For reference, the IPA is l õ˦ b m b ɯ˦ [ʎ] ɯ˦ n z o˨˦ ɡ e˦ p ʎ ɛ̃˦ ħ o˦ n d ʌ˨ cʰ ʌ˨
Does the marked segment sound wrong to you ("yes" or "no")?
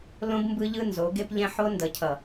no